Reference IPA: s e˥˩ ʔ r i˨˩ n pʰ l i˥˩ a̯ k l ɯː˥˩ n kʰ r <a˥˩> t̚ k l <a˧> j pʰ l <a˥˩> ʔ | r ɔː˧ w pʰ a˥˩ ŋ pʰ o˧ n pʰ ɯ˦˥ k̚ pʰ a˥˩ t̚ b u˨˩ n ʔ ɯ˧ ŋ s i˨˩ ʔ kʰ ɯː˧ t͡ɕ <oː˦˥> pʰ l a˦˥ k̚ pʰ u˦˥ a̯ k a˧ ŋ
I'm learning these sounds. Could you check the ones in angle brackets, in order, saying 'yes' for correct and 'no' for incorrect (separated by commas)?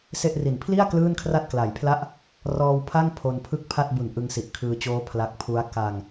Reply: yes, no, yes, yes